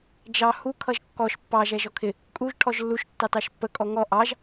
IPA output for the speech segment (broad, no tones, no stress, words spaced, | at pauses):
d͡ʒɑ hu kʰʌʒkːɔʃ pːɑ ʒɛʒɔkʰɪ | kʼuʒ ʈʰɔʒlːuʃ tːɑtɑʃpːə kʼɔŋɔ ʔɑʒ